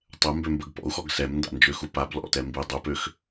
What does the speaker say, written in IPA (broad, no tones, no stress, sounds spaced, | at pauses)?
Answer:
tˤ ɛ m b ø m b ə ɡ p ɔ̰ u̯ x ɔ ɡ s ɛ m n d a̰ n d͡ʒ ø x u p a b l ɔ̰ t ɛ m b i dˤ u p ø x